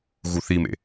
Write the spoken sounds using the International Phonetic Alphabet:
ɣ u θ i m ḛ

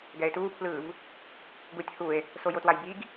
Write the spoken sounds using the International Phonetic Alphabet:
ɡ ɛ e̯ t uː pʰ l ɯː v | ɡ u tʲ h u e̯ | s o j o t w a j b i ɡ

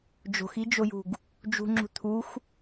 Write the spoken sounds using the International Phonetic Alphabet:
d͡ʒ o̤ x i d͡ʒ o j ṳ ɡ | d͡ʒ ṳ ŋ͡ǁ ṳ t̪ʰ u x

